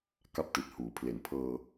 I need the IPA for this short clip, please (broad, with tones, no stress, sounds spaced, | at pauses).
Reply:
k a˦˥ p̚ t i˨˩ t̚ h uː˩˦ pʰ l e˨˩ n pʰ ɤː˧